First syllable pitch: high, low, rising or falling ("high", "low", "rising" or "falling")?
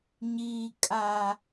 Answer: low